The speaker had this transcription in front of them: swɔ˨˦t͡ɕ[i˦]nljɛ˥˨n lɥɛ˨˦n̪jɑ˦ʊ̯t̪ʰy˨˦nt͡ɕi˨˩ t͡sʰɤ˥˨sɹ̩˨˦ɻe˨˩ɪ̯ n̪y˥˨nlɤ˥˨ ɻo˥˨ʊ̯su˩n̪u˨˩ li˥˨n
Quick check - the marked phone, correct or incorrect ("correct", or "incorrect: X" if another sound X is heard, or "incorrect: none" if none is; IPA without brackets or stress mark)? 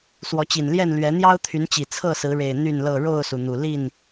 incorrect: i˨˩